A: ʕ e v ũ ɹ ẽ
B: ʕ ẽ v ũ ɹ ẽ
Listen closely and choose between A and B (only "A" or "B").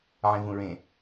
B